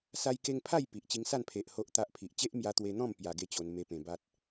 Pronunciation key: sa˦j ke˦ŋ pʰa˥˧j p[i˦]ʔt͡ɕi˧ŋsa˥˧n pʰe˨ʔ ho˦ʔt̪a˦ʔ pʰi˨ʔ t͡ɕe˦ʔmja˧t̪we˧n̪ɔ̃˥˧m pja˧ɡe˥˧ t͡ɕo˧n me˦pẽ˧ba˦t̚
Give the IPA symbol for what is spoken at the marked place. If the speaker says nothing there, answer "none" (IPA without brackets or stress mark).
i˨